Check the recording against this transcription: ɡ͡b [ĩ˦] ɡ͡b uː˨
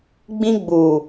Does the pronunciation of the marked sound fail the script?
no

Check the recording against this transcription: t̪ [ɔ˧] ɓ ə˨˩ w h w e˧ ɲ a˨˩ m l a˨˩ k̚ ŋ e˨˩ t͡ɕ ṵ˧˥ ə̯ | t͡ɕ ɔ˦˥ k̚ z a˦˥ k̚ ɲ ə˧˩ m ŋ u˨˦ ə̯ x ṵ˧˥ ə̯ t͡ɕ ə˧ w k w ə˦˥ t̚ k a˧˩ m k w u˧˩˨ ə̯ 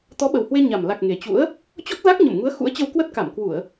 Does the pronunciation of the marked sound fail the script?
yes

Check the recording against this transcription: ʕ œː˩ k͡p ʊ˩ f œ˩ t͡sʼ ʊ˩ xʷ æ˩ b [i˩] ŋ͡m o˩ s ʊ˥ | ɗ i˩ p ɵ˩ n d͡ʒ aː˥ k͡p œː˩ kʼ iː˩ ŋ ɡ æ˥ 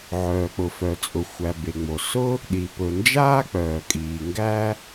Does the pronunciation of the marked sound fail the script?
yes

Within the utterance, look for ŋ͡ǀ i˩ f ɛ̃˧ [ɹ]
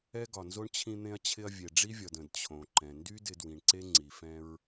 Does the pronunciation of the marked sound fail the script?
no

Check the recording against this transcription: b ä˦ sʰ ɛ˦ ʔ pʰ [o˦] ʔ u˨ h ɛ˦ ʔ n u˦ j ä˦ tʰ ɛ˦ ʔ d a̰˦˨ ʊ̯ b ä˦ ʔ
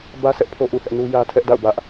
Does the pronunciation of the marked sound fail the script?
no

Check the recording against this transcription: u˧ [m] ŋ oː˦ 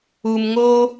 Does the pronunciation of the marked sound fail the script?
no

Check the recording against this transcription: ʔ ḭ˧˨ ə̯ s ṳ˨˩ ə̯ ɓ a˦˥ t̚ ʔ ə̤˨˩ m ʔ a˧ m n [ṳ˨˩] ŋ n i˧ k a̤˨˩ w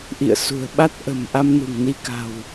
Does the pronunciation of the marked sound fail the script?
no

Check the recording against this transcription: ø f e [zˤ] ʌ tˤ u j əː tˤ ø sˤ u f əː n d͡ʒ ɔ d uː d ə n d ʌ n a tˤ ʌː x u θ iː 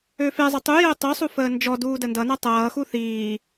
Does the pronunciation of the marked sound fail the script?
no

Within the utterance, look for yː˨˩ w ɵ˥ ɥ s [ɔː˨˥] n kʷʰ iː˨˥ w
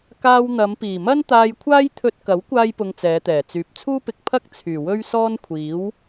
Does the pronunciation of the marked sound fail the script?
yes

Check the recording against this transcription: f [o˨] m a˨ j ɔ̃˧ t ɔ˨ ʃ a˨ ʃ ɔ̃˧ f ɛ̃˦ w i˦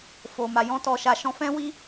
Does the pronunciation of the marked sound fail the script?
no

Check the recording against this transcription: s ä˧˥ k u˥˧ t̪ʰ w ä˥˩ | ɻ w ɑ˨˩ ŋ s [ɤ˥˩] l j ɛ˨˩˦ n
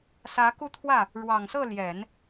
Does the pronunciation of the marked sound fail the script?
no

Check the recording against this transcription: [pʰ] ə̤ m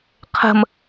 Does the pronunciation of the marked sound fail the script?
yes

